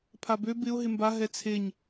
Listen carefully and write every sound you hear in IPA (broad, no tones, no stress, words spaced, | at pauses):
pʰabø bɪʊ̯ ɦɪmba ɦɛt͡sʰeɲ